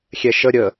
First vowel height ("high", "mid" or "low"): mid